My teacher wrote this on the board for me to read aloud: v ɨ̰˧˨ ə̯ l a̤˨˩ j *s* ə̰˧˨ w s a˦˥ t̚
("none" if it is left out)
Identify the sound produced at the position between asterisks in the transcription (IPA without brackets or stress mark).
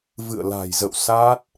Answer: z